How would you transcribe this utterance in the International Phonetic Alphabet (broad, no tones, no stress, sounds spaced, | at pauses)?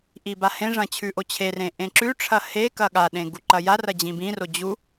ʔ i b a h ẽ ʐ ɐ̃ t͡ɕʰ ʉ ʔ o t͡ɕʰ e r ẽ ʔ ẽ ǁ ʉ ʈ͡ʂʰ ɐ h e k ɐ ɠ a ɗ ẽ ɡ u ǃ ɐ j a r ɐ d͡ʑ ĩ b ĩ r o d͡ʑ u